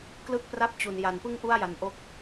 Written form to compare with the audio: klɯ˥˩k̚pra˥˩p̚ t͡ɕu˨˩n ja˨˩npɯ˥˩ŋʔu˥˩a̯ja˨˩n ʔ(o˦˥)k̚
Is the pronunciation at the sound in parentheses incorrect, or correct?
correct